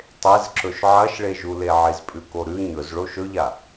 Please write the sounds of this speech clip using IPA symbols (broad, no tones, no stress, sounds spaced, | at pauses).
tˤ e z ǁ ɵ ʃ ʕ ɐ ʃ ɭ e ʒ u l e ʕ i z pʼ ʉ k o ɾ ʉ ɲ ɵ z ɭ o ʃ ɵ ʎ a